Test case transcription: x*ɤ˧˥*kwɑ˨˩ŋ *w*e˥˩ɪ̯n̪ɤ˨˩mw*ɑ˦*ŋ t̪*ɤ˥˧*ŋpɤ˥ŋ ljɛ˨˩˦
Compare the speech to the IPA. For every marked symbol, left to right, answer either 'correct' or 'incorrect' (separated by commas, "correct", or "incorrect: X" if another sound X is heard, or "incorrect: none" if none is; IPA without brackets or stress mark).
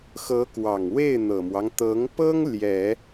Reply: correct, correct, correct, incorrect: ɤ˧˥